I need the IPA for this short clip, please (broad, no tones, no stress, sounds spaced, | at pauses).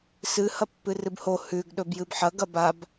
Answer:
s ɨ h ɐ pː ɨ r ɨ b h o h ʉ ɡ ɗ ɵ b j ɨ b ħ ɐ ɡ ɐ b a b